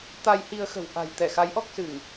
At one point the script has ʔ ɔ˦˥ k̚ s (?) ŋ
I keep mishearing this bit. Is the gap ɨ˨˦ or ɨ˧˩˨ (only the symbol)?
ɨ˧˩˨